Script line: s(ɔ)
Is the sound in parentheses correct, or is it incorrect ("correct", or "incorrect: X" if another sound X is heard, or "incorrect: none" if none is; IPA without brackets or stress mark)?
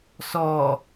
correct